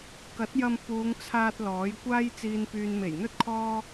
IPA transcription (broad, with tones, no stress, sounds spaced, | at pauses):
k ɐ˨˥ t̚ j ɐ˧ m p uː˨˧ ŋ t͡sʰ aː˧ t̚ l ɔː˨˥ j kʷ aː˥ j t͡s iː˨ n p yː˨ n m e˨˩ j n̪ ɵ˥ t̚ kʰ ɔː˥